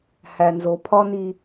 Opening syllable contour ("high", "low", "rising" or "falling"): low